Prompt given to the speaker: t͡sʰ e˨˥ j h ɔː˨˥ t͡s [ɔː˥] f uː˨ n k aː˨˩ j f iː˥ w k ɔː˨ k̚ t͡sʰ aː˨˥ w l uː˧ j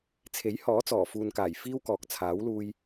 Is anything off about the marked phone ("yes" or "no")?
yes